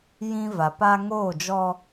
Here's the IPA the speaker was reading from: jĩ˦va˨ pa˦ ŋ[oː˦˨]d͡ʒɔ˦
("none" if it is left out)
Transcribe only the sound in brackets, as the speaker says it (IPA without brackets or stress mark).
oː˦˨